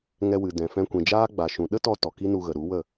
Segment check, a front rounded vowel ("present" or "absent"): absent